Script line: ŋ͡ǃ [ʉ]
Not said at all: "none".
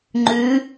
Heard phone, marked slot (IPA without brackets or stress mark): ʉ